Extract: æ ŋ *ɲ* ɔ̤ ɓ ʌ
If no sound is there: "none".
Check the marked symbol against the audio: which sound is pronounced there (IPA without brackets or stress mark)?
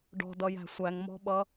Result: m